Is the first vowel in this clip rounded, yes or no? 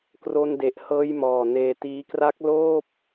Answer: yes